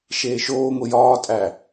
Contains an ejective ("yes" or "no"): yes